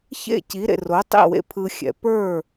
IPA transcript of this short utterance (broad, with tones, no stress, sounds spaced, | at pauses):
ç ḛ˥˩ c i˩˥ ɾ ḛ˩ r o˩˥ tˤ ḭ˥˩ w ḛ˥ pʰ ɯ˧ xʲ ɛ̰˩˥ p ə˞˥˩